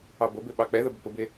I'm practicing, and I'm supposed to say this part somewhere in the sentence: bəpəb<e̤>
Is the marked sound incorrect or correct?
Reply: incorrect